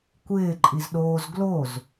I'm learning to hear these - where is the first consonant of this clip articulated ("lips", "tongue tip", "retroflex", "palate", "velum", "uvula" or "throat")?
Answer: velum